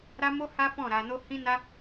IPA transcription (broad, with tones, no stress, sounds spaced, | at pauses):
ɾ a˦ m o˦ h a˦ f ɔ̃˦˨ ɾ a˧ n o˦ h ĩ˦ n a˦